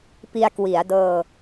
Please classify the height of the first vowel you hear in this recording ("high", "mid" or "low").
high